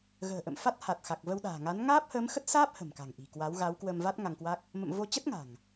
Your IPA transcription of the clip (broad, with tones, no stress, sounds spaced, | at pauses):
ɣ ə̤ː˨˩ ʔ ə̰˧˨ m f a˦˥ t̚ h a˨˩ t̚ x a˨˩ k̚ v ə˧ w ɗ a̤ː˨˩ ŋ a˨˦ n ŋ aː˦˥ p̚ h əː˨˦ m x ə˦˥ t̚ s aː˦˥ p̚ h ə̤˨˩ m k a̤˨˩ ŋ ʔ i̤˨˩ k w a˨˦ w ɣ a˨˦ w k w ə˧ m v a˦˥ t̚ ŋ a˧ ŋ k w a˦˥ k̚ | m ə̰˧˨ m v o˧ t͡ɕ ə˦˥ t̚ ŋ a̤˨˩ ŋ